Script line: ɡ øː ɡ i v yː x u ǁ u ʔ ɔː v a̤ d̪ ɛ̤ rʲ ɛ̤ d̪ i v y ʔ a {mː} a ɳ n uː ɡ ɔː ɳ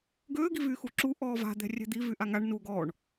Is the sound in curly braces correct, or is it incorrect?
incorrect